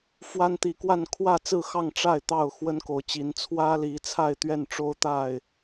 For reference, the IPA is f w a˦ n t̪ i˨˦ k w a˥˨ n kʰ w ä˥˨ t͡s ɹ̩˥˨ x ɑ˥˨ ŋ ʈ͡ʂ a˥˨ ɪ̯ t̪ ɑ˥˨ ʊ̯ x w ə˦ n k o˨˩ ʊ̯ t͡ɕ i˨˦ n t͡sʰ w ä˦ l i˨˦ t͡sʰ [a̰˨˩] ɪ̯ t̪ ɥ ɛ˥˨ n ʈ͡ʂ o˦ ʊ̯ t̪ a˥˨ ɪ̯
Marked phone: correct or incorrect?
incorrect